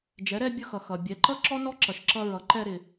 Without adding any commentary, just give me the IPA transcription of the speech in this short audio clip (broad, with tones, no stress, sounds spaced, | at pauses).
d͡ʒ ɛ˩˧ ɾ ɛ˧ bʲ ʊ˧ x ʌ˩ x ʌ˩ bʲ ɛ˩˧ ǃ ʌ˥ ǁ ɔ˥ n ɔ˥ ǁ ʌ˩ ʃ ǁ ʌ˧ ɹ ʌ˩˧ ǃ ɛ˧ ɾ ɪ˩